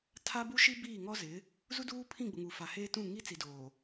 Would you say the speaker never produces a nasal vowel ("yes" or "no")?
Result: no